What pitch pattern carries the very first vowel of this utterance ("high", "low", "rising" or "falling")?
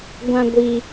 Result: high